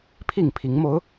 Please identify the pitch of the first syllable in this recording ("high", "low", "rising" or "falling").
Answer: falling